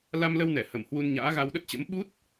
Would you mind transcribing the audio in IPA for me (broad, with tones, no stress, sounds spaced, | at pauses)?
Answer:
l a˧ m l ə˧ w n ɛ˧˩ h ə˧˩ m h w u˧ n ɲ a̰ː˧˥ ɣ a˧ w ɗ ə˦˥ t̚ t͡ɕ ə̰˧˥ m ɓ u˦˥ t̚